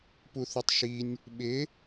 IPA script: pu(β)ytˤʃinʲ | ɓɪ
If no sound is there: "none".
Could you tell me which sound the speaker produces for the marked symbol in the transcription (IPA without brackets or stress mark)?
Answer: θ